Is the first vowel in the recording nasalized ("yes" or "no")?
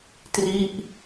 no